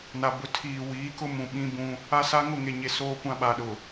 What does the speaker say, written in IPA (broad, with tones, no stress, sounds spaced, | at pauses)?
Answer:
n a˨ b ʊ˨ tʰ iː˨ w iː˨˦ k ʊ˦ m ũ˨ ɓ ĩ˦ b ũ˦ | a˦ s a˦ ŋ ʊ˦˨ ŋ e˨ ɲ e˨ s oː˦ kʷ ã˦ ɓ a˨ ɗ ʊ˨